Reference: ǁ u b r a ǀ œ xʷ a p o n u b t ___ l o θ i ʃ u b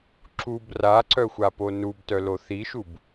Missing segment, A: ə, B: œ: B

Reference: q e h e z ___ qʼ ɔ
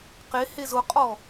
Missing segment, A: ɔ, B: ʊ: B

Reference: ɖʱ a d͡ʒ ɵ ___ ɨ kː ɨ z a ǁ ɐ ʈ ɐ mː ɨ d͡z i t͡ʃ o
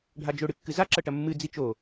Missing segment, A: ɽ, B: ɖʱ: A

